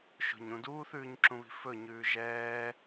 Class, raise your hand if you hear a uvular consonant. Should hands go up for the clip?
no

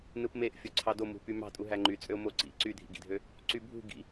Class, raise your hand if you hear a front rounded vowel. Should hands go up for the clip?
yes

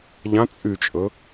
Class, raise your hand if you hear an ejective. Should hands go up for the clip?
yes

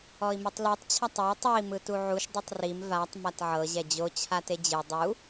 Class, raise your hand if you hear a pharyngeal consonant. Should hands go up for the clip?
yes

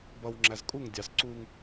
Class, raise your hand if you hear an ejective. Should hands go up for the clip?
yes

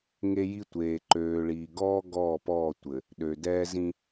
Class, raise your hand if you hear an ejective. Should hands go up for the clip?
no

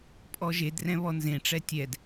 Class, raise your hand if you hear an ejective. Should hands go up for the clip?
yes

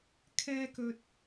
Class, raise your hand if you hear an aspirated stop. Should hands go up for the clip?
yes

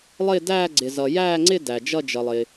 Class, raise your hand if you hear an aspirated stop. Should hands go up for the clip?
no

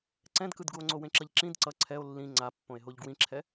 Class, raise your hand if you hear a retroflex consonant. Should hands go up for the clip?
no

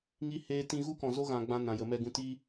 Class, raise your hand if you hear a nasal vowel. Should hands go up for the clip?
yes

